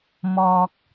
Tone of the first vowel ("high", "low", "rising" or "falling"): high